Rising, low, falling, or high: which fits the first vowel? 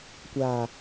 low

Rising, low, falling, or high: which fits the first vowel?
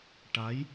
rising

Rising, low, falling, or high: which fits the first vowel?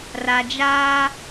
low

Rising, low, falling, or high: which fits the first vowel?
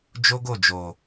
high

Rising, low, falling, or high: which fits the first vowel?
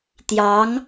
rising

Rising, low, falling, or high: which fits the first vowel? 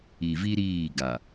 low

